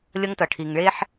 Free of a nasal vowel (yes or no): yes